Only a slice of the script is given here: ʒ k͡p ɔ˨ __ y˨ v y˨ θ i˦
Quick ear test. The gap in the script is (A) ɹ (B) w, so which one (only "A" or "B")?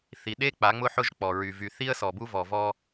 A